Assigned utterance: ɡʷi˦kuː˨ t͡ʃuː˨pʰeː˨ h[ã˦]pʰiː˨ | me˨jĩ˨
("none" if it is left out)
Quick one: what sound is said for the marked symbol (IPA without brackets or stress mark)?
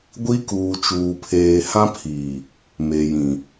ã˦